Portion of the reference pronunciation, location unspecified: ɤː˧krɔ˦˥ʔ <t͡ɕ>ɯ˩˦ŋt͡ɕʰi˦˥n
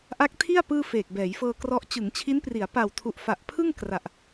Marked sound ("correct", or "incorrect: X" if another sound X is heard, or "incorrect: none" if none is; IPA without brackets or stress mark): correct